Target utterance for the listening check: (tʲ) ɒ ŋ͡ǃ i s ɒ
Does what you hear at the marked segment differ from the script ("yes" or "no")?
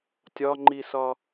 no